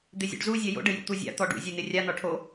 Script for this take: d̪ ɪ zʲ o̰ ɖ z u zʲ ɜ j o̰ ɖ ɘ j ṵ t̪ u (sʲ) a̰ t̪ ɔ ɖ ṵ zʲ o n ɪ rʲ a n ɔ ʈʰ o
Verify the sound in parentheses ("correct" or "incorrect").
incorrect